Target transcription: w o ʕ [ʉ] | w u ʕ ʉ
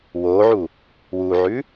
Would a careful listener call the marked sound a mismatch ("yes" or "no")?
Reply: yes